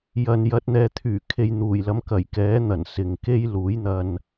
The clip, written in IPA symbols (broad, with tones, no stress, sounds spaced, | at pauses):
j ɐ˨ n j ɐ˧ t̚ n̪ ɛː˧ t̪ʰ yː˨˩ kʰ e˧ j n̪ uː˨˩ j l ɐ˧ m k ɐ˨˩ j k ɛː˨˥ n̪ ɐ˨˩ n s ɪ˨ ŋ k e˥ j l uː˨˥ j n̪ ɐ˧ n